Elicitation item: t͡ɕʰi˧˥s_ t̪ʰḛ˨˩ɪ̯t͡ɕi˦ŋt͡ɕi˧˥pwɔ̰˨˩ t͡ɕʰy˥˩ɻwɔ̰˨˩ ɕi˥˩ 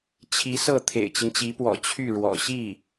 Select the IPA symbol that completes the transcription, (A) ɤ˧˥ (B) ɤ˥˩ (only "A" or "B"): B